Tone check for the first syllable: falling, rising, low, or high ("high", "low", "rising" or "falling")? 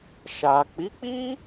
low